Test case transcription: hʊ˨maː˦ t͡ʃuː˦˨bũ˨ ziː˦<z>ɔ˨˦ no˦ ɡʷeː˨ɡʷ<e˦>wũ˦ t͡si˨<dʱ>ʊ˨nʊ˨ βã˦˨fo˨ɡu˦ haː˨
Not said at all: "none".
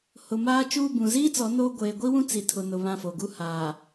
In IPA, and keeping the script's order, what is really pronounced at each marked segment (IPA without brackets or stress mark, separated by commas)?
t͡s, i˦, tʰ